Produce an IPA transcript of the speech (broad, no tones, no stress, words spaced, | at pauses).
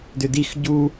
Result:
dʏdix ɟu